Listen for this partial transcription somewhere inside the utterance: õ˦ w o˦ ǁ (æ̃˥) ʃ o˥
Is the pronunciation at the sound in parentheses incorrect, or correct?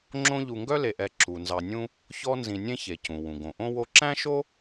correct